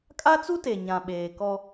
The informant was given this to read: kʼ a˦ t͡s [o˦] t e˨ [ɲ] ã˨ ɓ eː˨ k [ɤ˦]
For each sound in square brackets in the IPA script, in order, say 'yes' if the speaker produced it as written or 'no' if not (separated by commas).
no, yes, no